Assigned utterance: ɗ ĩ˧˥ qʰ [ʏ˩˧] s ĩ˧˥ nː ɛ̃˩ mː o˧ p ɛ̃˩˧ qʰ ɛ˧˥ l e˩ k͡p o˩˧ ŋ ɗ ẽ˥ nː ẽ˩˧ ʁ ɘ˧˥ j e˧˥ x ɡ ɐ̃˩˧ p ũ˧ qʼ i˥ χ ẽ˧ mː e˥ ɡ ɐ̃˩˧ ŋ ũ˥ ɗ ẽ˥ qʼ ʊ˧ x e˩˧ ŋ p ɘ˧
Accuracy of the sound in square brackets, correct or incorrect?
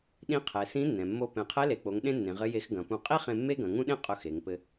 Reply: incorrect: ɛ˩˧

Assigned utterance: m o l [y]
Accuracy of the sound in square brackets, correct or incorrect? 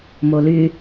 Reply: correct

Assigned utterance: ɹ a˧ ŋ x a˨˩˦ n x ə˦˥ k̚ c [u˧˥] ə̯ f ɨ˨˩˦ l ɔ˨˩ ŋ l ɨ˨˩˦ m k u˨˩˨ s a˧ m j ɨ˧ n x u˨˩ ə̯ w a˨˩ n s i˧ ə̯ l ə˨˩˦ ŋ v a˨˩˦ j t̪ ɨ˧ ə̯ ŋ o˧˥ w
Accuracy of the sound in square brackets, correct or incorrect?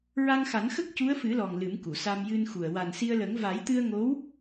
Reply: correct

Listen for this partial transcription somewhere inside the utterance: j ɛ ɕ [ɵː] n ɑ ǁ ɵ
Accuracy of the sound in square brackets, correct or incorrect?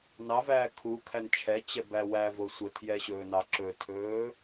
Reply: correct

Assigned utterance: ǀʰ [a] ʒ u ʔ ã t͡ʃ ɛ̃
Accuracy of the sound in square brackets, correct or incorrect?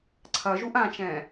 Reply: incorrect: ɐ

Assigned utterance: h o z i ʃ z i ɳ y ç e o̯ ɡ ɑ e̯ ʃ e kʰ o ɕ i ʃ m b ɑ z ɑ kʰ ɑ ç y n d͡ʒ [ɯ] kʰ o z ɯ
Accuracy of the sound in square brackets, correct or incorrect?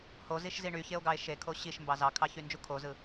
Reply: incorrect: u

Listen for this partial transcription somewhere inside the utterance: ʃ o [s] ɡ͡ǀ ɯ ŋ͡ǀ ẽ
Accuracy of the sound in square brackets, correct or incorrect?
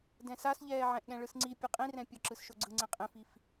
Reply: incorrect: none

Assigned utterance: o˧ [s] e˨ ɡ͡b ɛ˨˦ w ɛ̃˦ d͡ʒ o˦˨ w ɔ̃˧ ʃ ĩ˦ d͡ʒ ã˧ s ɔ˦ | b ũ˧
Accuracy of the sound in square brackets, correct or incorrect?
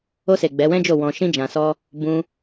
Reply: correct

